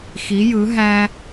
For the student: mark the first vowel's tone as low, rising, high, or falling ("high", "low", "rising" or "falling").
rising